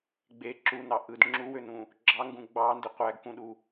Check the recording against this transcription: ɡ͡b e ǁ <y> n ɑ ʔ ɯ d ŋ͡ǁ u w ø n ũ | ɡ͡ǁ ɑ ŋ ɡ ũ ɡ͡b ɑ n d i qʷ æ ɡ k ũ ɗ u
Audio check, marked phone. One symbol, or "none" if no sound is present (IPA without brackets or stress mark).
u